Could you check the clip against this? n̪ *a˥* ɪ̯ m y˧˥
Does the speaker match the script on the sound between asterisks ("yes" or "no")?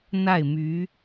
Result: no